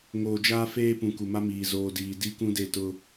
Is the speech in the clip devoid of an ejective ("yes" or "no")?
yes